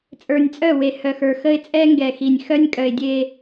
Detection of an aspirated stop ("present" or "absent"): absent